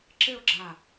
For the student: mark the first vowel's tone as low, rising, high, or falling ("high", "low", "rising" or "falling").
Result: falling